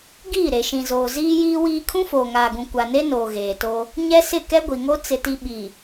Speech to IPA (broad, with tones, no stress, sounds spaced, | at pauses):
ɡ iː˦˨ ɾ e˨ ʃ ĩ˨ z oː˨ z iː˦ j iː˦ w iː˦ kʰ ũ˦ f oː˨ ŋ aː˨ ɡ ũ˨ kʷ a˨ n e˦ n oː˨ ɣ eː˨ t o˦ | ɲ ɛ˦ s ɪ˦˨ k ɛ˦ ɡʷ i˨ ŋ o˦ t͡s ɪ˨ t i˨ ɓ i˨